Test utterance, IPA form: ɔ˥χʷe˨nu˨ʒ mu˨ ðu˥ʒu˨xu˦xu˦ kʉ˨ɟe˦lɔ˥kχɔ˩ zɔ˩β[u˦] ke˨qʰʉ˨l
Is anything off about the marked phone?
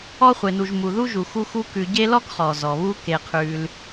no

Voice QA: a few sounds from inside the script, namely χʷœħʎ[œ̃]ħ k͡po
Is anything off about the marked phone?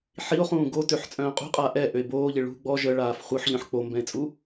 no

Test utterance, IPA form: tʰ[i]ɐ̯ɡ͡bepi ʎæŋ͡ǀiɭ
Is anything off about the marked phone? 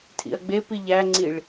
yes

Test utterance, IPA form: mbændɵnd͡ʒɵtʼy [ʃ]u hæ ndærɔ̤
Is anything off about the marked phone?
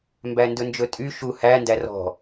no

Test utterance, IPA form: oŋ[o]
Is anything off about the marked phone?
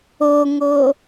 no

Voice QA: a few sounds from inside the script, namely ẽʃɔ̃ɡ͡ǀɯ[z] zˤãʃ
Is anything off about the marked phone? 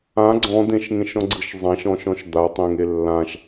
yes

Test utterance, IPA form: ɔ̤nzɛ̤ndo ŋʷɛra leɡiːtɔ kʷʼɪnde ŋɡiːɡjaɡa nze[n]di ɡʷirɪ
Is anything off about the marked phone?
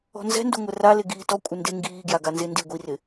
no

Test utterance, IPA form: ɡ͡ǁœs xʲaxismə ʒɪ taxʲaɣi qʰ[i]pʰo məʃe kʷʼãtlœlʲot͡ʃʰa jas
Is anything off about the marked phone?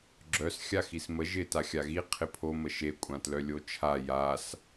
yes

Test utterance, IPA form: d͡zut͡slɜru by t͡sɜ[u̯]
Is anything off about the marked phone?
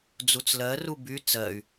yes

